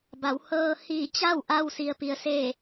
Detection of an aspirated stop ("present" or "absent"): absent